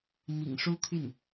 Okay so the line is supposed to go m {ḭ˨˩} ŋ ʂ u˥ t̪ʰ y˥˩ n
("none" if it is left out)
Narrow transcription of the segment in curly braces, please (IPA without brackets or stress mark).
ḭ˨˩